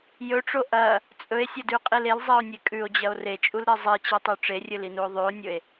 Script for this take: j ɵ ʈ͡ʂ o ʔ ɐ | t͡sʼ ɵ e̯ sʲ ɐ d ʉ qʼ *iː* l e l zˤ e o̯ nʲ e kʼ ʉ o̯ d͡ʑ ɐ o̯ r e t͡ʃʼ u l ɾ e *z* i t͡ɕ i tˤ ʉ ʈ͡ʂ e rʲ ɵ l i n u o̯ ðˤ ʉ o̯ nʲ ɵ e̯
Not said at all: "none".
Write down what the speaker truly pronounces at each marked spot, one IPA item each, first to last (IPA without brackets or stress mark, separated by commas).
i, zˤ